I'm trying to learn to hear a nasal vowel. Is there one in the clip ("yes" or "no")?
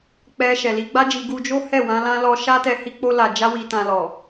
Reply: yes